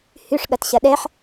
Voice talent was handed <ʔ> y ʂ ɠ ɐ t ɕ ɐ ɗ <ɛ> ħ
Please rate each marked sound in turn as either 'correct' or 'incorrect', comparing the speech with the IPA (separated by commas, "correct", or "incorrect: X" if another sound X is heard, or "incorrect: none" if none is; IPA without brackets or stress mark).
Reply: incorrect: h, correct